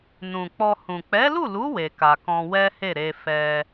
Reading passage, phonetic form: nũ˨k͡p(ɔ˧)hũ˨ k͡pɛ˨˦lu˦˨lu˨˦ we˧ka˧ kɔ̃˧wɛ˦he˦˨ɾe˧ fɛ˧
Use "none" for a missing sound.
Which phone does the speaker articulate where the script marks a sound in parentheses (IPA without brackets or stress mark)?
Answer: ɔ˧